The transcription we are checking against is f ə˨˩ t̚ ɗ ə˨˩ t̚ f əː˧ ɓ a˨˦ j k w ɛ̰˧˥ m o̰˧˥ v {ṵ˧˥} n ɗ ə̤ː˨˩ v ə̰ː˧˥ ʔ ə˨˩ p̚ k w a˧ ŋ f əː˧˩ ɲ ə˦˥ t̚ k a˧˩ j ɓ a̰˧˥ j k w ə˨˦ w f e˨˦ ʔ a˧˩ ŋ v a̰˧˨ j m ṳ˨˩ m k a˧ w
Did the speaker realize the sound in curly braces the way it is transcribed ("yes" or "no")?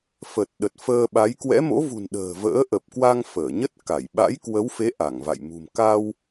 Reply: no